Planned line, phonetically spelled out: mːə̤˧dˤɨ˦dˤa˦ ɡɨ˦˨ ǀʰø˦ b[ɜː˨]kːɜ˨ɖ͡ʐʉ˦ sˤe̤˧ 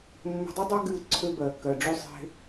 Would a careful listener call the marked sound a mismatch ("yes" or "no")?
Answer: yes